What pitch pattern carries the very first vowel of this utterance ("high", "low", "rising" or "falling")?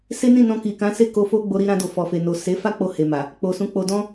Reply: high